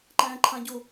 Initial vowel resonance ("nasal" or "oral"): nasal